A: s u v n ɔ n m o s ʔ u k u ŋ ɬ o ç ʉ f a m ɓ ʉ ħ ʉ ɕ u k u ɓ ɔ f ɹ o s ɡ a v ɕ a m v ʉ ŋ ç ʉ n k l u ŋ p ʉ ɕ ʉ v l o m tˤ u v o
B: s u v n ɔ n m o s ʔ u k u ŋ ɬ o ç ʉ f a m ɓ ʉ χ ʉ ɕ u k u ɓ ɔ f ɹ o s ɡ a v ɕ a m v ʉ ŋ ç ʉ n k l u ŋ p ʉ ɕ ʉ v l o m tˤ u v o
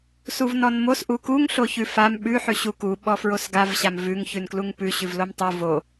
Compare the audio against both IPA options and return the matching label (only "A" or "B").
A